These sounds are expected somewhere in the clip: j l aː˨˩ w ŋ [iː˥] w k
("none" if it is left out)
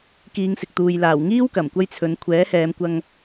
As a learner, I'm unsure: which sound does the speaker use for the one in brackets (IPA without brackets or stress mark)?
iː˥